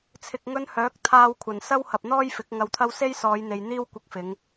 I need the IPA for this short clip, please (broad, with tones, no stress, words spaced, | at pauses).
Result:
t͡sʰɪ˨k̚ŋɵ˧n hœː˨˥k̚ t̪ʰaː˧wkʷʰɐ˨˩n sɐ˥whɐ˨p̚n̪ɔː˥j fɪ˨˥k̚ŋɐ˧wt̪ʰɐ˥w se˥jsɔː˨˧jn̪e˨j n̪iː˥w kʷɪ˧k̚fɪ˨˧ŋ